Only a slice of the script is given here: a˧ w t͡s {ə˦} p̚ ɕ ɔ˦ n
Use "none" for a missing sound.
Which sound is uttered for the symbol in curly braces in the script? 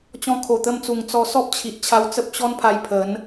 ə˦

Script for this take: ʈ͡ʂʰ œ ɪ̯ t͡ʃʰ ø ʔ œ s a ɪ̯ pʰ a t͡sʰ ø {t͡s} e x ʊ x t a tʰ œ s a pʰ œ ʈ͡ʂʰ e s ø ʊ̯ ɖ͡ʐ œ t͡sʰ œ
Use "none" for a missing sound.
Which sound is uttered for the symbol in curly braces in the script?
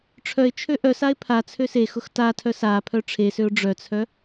s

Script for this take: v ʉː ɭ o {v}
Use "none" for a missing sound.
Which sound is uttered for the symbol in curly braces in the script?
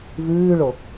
none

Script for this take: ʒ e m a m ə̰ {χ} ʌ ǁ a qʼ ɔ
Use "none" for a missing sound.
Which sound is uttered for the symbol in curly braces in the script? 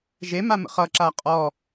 χ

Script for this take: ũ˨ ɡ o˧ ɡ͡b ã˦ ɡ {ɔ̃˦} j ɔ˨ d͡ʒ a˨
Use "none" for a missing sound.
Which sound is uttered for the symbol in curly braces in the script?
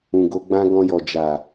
ɔ̃˧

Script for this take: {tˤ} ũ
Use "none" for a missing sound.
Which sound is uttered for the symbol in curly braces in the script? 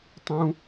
tˤ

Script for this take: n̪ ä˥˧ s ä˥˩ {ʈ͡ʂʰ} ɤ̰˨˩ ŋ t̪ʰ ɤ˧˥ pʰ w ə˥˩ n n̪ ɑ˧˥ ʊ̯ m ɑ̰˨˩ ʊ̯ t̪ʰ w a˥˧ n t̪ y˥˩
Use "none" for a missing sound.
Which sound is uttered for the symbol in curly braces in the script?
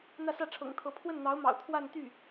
ʈ͡ʂʰ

